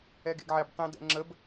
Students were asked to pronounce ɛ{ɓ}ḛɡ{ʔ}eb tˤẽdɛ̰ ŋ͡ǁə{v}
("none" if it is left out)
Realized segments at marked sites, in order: ɡ, ʕ, b

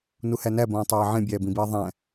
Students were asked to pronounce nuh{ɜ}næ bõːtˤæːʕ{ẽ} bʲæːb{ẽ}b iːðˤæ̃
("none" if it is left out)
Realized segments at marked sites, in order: æ, ẽ, ĩ

